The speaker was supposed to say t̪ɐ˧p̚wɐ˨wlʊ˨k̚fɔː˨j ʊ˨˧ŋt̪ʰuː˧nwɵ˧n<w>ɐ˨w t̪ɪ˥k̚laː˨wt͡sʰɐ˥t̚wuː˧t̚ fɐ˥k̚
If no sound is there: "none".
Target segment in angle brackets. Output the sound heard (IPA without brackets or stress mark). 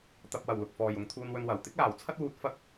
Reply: w